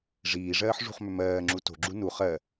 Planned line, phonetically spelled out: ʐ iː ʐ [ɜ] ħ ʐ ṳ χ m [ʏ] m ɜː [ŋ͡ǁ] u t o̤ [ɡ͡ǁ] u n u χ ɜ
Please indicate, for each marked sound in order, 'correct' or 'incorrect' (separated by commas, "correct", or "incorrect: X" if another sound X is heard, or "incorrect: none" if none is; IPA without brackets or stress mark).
incorrect: ɜː, correct, correct, correct